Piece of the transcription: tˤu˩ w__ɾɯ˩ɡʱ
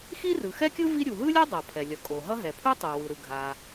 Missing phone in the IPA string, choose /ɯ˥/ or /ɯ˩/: ɯ˩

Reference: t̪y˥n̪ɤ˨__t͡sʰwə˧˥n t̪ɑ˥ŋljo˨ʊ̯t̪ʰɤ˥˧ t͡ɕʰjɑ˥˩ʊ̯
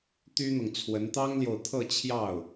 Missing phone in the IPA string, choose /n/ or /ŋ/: ŋ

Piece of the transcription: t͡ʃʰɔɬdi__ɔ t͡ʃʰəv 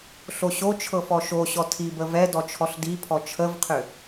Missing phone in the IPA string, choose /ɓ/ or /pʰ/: pʰ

